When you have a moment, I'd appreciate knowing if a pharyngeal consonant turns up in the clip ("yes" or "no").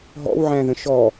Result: yes